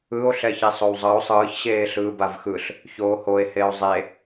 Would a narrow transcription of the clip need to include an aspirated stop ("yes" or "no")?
no